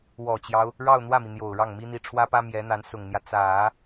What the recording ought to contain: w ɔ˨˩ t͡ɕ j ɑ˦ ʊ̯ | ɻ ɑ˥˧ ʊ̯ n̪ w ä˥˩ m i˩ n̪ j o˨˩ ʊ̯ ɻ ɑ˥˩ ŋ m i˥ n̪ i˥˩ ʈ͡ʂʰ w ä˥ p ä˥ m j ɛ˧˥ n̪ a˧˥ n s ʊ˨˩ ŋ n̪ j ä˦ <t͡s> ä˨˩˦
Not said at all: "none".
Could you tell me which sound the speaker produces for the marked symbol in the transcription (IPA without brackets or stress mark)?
t͡s